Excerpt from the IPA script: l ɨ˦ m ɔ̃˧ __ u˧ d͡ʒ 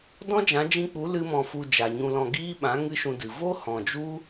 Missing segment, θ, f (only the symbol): f